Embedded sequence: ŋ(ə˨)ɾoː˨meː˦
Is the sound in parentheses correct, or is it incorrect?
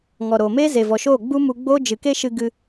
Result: incorrect